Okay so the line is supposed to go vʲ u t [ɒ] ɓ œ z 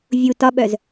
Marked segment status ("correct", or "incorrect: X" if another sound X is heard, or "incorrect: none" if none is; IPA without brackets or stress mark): correct